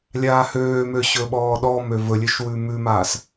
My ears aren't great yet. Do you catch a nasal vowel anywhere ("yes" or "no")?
no